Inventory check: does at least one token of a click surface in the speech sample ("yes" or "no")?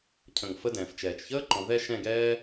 yes